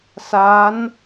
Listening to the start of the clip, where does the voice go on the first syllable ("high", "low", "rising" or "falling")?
rising